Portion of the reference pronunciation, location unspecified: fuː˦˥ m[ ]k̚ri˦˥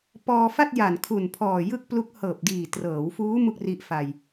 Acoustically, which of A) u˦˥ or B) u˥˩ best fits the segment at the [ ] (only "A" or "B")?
B